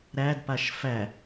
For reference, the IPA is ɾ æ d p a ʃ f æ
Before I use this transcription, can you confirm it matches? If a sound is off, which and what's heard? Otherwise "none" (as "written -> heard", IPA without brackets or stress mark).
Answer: none